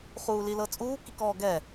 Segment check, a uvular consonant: present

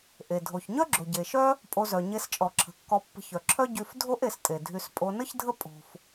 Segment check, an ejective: present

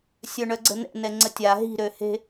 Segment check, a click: present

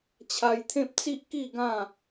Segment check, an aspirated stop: present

